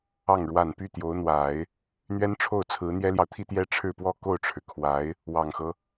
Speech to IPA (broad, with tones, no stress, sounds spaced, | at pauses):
ɑ˥˩ ŋ ɻ w a˨˩ n p y˥˩ t̪ j o˧˥ ʊ̯ n̪ w a˨˩˦ ɪ̯ | n̪ ɥ ɛ˥ n ʈ͡ʂʰ o˥˩ ʊ̯ t͡sʰ ɹ̩˧˥ n̪ j ɛ˥ l j ɑ˨ ʊ̯ t̪ʰ i˥ t̪ j ɛ˥ ʈ͡ʂʰ ɻ̩˥˧ p w ɔ˥˧ k o˥˩ ʊ̯ ʈ͡ʂʰ ɻ̩˩ kʰ w a˧˥ ɪ̯ | w ɑ˨˩ ŋ x ɤ˦